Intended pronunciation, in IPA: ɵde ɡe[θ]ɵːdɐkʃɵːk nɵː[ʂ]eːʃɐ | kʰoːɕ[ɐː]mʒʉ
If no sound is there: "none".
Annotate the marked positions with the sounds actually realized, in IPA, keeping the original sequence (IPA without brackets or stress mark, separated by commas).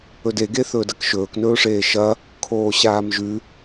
θ, ʂ, aː